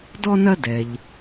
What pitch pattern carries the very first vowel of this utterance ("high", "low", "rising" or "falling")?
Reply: high